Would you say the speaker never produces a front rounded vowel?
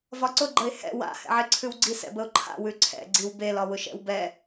yes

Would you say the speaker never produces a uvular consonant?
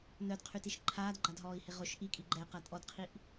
no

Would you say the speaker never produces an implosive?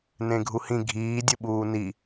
no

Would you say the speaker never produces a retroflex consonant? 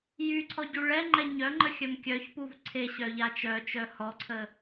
no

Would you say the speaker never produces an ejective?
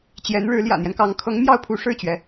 yes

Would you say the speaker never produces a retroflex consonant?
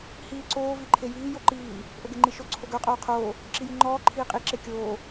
yes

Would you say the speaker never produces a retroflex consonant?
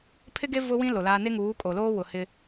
yes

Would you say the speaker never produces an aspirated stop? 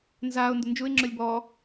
yes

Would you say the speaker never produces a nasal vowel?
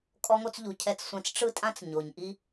no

